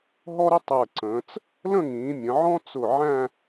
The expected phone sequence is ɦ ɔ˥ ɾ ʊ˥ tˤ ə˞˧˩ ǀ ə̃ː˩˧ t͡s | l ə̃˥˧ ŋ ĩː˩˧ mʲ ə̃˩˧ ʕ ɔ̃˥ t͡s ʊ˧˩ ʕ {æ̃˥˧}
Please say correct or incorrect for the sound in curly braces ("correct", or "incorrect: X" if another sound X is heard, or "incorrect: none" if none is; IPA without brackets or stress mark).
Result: correct